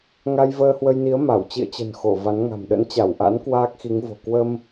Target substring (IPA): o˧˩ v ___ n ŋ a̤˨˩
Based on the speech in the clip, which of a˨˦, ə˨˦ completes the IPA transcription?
a˨˦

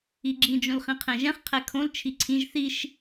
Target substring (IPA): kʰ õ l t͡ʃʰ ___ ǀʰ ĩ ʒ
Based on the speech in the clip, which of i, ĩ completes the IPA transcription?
i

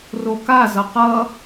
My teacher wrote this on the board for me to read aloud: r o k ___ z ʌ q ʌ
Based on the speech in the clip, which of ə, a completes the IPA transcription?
a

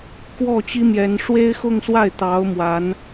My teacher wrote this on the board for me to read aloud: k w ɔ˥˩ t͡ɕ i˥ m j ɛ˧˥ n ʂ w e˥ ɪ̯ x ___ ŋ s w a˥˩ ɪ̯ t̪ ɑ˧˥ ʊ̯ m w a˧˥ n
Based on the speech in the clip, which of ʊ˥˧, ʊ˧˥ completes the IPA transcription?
ʊ˥˧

